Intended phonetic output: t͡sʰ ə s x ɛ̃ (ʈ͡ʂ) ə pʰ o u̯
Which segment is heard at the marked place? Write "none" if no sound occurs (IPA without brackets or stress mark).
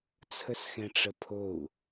ʈ͡ʂ